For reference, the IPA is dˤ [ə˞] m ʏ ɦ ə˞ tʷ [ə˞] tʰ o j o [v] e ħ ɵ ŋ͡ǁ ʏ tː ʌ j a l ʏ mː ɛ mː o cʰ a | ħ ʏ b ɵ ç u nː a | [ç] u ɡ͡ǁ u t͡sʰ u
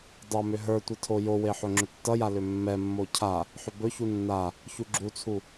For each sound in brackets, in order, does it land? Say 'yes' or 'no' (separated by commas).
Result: no, no, no, yes